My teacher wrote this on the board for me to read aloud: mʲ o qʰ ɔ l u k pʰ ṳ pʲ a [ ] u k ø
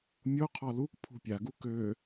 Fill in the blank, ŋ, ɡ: ɡ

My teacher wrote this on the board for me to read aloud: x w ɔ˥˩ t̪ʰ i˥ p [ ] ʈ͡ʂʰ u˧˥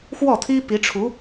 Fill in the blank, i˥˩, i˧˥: i˧˥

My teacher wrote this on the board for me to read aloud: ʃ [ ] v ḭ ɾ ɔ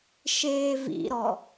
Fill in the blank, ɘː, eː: eː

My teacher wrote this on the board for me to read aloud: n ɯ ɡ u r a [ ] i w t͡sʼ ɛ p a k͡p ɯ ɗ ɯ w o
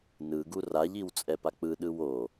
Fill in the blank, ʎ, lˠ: ʎ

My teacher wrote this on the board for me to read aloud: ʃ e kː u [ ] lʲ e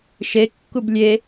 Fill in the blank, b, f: b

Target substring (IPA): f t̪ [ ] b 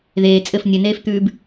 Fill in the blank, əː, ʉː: ʉː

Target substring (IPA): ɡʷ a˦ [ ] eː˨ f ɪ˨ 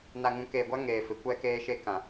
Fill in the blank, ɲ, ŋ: ŋ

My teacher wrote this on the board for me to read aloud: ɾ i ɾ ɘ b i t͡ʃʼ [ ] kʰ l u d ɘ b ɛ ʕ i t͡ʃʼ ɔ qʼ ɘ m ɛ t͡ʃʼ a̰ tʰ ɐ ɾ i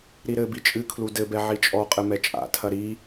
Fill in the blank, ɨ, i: ɨ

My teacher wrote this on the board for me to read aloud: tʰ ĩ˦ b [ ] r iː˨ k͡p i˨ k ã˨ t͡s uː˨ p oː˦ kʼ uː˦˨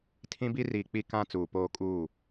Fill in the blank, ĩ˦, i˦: i˦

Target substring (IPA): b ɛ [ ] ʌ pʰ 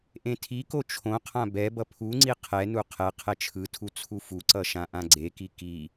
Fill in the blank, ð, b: b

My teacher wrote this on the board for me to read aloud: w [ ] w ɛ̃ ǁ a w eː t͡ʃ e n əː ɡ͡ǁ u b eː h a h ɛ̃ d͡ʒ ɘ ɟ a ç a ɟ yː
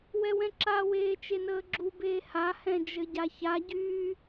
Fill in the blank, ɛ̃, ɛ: ɛ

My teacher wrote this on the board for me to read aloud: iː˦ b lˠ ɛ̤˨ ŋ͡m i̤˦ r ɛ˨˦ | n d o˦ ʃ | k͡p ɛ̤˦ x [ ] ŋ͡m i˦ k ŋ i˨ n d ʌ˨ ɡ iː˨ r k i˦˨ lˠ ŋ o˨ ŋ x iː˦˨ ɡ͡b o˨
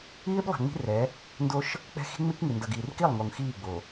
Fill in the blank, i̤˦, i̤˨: i̤˦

